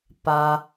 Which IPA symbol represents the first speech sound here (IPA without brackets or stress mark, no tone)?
p